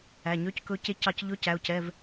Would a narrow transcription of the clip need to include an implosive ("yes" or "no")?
no